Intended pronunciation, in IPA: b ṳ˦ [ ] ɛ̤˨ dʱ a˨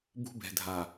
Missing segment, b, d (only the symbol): b